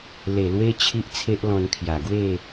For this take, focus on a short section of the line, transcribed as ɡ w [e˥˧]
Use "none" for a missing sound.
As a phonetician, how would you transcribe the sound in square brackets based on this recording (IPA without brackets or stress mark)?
e˥˧